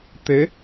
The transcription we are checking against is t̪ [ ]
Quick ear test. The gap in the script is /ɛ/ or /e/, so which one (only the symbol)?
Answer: e